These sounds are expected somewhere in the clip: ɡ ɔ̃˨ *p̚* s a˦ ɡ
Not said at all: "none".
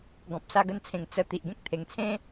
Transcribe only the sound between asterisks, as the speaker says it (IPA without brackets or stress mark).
p̚